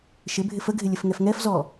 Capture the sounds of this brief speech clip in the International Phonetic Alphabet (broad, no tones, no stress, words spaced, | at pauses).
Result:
ʃɪbʱɪ fəɡʱɪlʲəfŋɛf ŋɛfzɔ